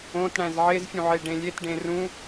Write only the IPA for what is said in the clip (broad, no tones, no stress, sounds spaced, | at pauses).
õ t ɽ æ̃ z ʕ e z fʲ ũ ʕ e ɖ ẽ lʲ e t ɖ ẽ r ũ